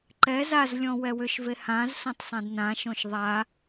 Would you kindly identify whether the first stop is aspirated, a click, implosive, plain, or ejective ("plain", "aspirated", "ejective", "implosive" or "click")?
click